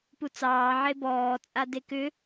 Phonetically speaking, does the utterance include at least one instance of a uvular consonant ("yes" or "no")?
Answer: no